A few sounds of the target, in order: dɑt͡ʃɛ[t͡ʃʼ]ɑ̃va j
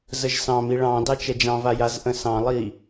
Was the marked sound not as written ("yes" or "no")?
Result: yes